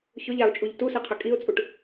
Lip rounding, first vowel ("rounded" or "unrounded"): rounded